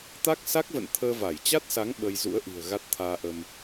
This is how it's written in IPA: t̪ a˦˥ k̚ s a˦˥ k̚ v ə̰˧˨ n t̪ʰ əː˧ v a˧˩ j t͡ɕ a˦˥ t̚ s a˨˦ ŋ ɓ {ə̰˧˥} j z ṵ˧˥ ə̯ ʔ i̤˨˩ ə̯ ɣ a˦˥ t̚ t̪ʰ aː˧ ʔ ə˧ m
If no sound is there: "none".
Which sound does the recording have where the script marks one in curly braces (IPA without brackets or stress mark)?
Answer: ə˧